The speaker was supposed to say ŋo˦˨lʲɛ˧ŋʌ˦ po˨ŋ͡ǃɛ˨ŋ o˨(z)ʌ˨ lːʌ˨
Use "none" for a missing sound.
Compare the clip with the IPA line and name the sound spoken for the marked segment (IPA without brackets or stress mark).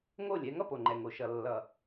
ʃ